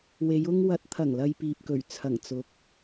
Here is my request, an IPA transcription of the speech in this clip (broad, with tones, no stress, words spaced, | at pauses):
we˨˧j ʊ˧ŋwɐ˨˥t̚ t̪ʰɐ˨˩ŋlɐ˨j piː˨p̚kɵ˨˩ɥ t͡sʰɐ˨˩ŋt͡sʊ˨˥k̚